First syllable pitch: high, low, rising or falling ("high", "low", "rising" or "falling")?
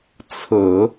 low